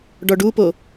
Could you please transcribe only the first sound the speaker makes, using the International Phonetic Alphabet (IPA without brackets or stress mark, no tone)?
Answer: ɖ